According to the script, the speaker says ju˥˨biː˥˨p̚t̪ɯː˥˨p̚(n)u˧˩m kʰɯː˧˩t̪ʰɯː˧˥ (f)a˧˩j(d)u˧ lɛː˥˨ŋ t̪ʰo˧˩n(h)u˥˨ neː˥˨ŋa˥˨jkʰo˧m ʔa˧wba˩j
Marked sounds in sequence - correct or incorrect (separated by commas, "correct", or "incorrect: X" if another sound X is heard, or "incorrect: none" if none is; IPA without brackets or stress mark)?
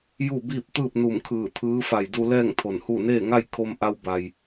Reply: correct, correct, correct, correct